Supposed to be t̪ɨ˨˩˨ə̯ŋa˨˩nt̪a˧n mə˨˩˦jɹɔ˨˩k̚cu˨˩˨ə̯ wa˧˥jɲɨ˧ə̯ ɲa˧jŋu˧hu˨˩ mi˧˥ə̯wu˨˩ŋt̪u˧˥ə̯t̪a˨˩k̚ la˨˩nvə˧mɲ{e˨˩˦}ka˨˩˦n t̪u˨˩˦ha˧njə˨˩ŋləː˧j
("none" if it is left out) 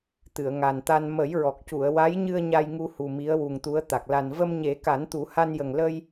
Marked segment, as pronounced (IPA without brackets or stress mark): e˨˩˦